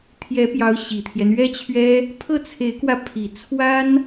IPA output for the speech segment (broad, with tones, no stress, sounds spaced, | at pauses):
t̪ʰ j ɛ˧˥ p j ɑ˧˥ ʊ̯ ɕ i˨˩ t̪ʰ j ɛ˦ n ɥ ɛ˥ t͡ɕʰ ɥ ɛ˥ | pʰ ɤ˥˩ t͡sʰ e˧˥ ɪ̯ k w ä˧ pʰ i˨˩ t͡sʰ w a˥ n